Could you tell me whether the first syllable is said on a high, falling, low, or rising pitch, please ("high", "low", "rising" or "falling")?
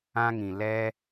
high